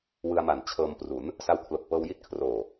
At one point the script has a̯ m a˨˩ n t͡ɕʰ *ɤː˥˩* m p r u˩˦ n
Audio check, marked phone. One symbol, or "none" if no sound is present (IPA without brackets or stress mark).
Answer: ɤː˧